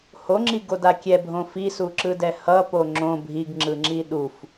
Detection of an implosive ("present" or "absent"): present